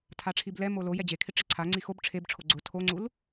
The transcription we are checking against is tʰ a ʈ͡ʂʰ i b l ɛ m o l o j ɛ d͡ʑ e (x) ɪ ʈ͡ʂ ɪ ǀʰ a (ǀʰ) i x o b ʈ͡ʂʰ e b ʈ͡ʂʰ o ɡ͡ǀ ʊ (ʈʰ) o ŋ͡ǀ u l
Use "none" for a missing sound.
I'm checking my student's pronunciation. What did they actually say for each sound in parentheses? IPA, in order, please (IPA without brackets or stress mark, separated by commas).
kʰ, ŋ͡ǀ, tʰ